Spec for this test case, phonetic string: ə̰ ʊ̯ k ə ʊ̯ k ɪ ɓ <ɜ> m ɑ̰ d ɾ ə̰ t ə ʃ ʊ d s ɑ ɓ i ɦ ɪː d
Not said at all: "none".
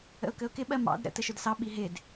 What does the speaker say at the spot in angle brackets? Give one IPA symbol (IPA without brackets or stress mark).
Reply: ɜ